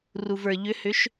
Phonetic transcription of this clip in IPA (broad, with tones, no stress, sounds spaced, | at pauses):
r u˩ v ə˞˩ ʎ ʏ˨˦ h ʏ˨˦ ʃ